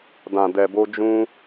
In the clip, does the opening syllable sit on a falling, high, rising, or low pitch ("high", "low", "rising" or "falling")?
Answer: low